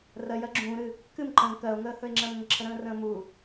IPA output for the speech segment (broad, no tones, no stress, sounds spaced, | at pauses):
r ɜ j ɜ ɡ͡ǁ ũː ɾ ɨ | k ɨ m ǃ ə̃ ŋ k ɜ o̯ ŋ əː h ɵ e̯ ŋ͡ǁ ɜ m ŋ ə ǁʰ ə ɾ ə̃ː r ə̃ː m u